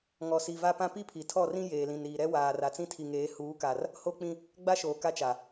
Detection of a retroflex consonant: absent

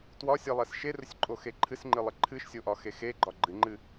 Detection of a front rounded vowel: absent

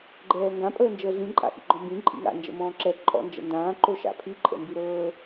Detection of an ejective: present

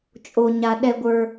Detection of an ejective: present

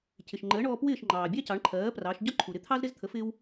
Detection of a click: present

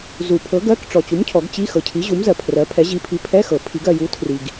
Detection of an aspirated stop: present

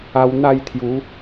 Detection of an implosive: absent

